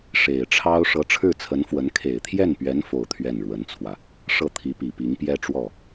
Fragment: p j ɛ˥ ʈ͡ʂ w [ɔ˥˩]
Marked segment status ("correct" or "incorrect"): correct